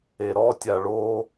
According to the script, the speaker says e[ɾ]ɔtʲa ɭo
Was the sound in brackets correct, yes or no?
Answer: yes